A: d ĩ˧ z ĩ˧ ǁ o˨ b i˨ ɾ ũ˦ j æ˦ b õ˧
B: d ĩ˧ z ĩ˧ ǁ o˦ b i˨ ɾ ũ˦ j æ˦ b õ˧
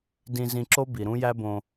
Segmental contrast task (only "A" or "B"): B